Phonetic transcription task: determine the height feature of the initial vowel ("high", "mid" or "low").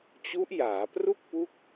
high